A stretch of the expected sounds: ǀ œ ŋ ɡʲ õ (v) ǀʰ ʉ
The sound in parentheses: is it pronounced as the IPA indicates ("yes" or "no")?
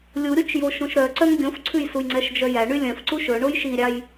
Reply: no